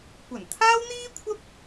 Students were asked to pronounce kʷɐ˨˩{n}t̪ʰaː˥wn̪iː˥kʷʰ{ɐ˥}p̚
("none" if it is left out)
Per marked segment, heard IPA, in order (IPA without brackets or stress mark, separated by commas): n, ɐ˥